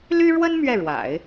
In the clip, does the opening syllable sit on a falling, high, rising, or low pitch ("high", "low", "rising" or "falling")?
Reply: high